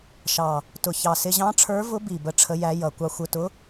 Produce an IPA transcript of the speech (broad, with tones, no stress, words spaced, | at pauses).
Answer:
ʃɑ˨˩ | tʊ˨˩çɑ˨˩ sɪ˧ʑɑ̃˧˥ʈ͡ʂʰə˞˧˥vʊ˧˥ bi˨˩bə˧˥ ʈ͡ʂʰə˧˥jæ˧˥jʌ˨˩ kʷɑ˧xʷə˞˧tʊ˧˥